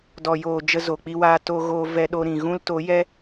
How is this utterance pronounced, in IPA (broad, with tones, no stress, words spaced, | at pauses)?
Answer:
dɔ˨joː˨ d͡ʒə˧zo˨k͡pi˧waː˧ to˧ɣoː˧ vɛ˧ɗo˧ɾĩ˨ ɣũ˦lto˨˦ jɛ˦